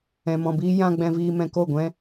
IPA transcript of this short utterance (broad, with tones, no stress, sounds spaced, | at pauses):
ɛ̃˨ m ɔ̃˨ b iː˦ j ã˧ ɡ͡b ɛ̃˧ v iː˧ m ɛ̃˧ k o˦˨ ɡʷ ɛ̃˦